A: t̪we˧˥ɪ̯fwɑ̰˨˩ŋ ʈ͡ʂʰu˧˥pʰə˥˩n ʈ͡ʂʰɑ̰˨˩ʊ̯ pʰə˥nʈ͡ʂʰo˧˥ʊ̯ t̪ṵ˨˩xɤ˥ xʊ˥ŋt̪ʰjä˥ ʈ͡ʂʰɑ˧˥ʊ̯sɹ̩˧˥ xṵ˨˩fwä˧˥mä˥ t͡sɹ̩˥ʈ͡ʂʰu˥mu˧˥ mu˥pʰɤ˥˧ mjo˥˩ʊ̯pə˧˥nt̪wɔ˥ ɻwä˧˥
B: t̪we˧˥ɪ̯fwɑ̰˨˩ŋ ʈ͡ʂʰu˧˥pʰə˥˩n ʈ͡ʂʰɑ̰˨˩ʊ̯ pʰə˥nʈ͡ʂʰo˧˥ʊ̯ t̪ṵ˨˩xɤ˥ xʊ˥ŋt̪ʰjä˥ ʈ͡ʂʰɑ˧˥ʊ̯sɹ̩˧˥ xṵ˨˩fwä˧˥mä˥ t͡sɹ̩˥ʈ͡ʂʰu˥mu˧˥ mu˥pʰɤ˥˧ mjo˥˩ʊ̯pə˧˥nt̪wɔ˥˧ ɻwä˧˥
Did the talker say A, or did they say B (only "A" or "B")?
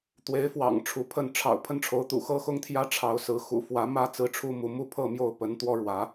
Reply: A